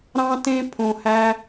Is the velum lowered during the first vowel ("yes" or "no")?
yes